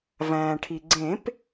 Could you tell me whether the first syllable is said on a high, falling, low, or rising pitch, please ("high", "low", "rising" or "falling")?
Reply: low